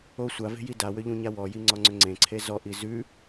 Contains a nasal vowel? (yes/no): yes